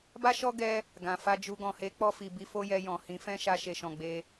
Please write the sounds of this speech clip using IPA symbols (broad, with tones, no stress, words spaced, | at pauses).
ba˦ʃɔ˦ ɡɛ˦ | ɡã˨fa˧d͡ʒu˧ ɡɔ̃˨he˨˦k͡pɔ˧ fi˨bi˧fo˦jɛ˧ jɔ̃˨ hĩ˨˦ fɛ̃˦ʃa˧ ʃe˨ʃɔ̃˨ ɡ͡be˧